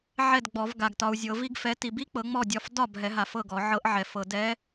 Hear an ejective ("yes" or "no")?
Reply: no